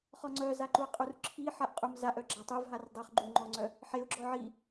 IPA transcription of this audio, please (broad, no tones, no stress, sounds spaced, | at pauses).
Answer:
χ ɔ ŋ͡ǀ œ z a ǃ u ɪ̯ qʼ u r ǁʰ i ħ a ʔ qʼ u m z a ʔ œ ɡ͡ǁ a tˤ u v ɦ a r dˤ œ χ ɡ͡ǃ u ŋ͡ǃ ɔ ŋ͡ǀ œ | ħ e ʊ̯ ɡ͡ǁ ɔ ʕ i